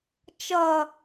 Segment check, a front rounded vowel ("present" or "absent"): absent